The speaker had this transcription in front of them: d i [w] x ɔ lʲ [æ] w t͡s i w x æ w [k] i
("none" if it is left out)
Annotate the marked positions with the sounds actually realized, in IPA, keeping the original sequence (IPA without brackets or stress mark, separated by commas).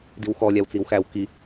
w, æ, k